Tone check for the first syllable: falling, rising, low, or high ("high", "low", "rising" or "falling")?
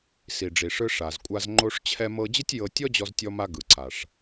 low